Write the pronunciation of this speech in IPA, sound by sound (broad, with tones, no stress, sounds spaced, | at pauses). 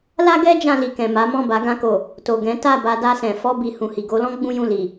l a˦ ɡ ɛ˦ d͡ʒ ã˧ l i˨ k ɛ̃˨ m a˨˦ m ɔ̃˦˨ b a˨˦ ɡ ã˧ k o˨ | t o˨ ɡ ɛ̃˨˦ t a˦˨ b a˧ d a˧ s ɛ̃˨ f ɔ˧ b i˨ h ũ˨ h i˨ ɡ o˨˦ l ɔ̃˦ ɡ͡b ũ˦ j ũ˦˨ l i˨